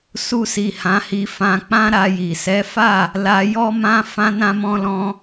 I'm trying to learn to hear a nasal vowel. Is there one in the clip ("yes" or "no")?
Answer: yes